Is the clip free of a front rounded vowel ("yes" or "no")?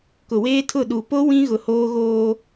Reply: yes